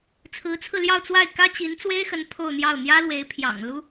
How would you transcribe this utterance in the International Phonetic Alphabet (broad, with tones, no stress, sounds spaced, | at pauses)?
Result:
t͡sʰ ɹ̩˧˥ t͡sʰ ɹ̩˧ l j ɑ˥˧ ʊ̯ t͡s w a˥˩ ɪ̯ k ä˥ t͡ɕ i˧˥ n t͡s w e˥ ɪ̯ x ə˧˥ n pʰ o˥˧ ʊ̯ n̪ j ɑ˥˩ ʊ̯ n̪ j ä˥ l w e˧˥ ɪ̯ pʰ j ɑ̰˨˩ ŋ l u˥